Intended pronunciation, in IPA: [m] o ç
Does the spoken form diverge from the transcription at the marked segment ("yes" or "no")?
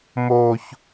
no